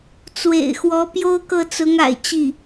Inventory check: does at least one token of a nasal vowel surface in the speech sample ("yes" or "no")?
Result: no